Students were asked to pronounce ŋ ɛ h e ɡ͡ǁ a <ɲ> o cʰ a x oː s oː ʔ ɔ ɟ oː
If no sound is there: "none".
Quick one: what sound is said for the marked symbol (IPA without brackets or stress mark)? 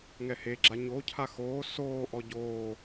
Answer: ɲ